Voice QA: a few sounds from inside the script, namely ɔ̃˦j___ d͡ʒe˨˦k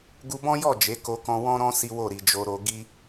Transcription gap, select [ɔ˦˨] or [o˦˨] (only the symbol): ɔ˦˨